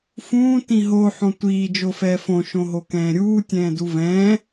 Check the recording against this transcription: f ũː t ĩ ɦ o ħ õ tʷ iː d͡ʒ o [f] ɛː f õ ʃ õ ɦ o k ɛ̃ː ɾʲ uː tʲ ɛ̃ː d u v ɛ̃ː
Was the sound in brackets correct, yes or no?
yes